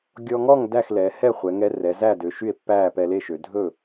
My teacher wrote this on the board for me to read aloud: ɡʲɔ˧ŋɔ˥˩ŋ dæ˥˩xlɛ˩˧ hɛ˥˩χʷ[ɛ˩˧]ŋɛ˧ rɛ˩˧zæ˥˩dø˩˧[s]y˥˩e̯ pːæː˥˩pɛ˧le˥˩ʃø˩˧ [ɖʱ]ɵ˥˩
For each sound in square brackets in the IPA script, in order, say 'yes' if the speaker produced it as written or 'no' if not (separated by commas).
yes, no, no